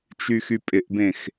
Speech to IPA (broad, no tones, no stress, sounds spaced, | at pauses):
t͡ʃ y x y pʼ ɪ ʔ b ẽ x